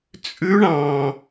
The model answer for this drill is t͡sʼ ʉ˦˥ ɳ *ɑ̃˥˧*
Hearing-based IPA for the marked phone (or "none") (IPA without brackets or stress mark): ɑ̃˧